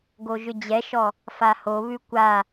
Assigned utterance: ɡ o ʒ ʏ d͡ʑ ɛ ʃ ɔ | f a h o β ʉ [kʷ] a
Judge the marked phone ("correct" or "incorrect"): correct